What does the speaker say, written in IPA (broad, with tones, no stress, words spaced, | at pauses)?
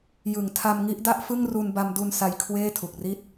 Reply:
jɯ˨˩ŋtʰa˧mŋi˦˥ʔda˥˩ʔ fɯ˥˩ŋru˧n ba˧mdu˧n sa˧jkʰweː˥˩ tʰu˨˩k̚ri˥˩t̚